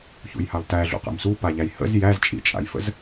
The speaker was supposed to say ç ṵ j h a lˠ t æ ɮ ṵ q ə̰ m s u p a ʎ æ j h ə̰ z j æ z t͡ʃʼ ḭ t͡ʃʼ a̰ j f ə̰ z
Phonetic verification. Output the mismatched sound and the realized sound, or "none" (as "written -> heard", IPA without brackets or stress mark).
none